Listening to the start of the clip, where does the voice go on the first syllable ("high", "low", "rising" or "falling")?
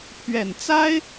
low